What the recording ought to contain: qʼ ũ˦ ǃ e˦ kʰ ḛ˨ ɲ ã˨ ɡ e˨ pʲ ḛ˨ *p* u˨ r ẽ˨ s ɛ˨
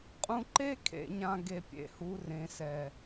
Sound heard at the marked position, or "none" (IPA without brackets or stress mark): h